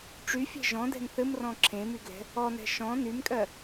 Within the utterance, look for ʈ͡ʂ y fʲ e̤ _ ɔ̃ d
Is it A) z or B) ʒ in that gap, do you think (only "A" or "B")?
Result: B